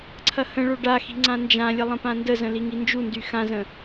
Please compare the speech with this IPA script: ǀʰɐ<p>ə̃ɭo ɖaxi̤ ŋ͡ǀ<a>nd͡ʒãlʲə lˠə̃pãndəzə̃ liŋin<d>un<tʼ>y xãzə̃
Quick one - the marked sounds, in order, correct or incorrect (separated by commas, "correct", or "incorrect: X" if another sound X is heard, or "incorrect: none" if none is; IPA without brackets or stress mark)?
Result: incorrect: h, incorrect: ã, incorrect: d͡ʒ, incorrect: d